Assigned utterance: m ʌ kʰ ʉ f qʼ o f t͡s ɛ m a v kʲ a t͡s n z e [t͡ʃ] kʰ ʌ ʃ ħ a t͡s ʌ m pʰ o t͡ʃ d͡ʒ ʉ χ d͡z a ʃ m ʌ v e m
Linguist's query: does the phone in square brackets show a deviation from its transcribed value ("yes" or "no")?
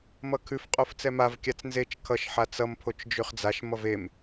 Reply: no